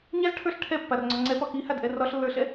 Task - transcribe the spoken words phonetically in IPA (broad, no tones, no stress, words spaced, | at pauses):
ɲazʈʰə˞ɬ ʈʰɛpːarŋ͡ǀɒ ŋ͡ǀɛpɒ kihadʔɛ rɒɬlːə˞ɬɛ